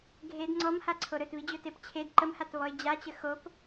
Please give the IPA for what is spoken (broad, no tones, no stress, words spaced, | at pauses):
ɡʱed ŋ͡ǀɔmhaǀʰo ɾɵtβid͡ʑɵtep t͡ɕʰed ǃəmhatβɔɪ̯ d͡ʑat͡ɕə xop